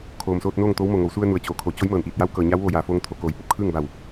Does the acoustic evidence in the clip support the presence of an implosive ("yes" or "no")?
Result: no